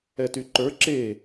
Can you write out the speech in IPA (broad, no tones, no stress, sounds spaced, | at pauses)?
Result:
ɛ t y ǃ ə˞ ǁ e